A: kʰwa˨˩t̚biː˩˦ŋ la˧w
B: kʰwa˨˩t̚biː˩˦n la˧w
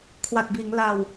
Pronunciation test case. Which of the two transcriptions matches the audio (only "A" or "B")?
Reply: A